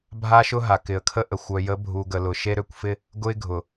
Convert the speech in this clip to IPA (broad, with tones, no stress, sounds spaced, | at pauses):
bʱ a˦ ʃ ʊ˦ ɦ a˨ k ɪ˨ ə̯ kʰ ə˦ ʔ ə˨ xʷ œ˨ j ə˨˦ bʱ u˨ ɡ ə˨ l ʊ˨ ʃ e˦ ɾ ø˦ kʷ f ɪ˦ | ɡ ʊ˦ ɪ̯ ɡʱ ʊ˨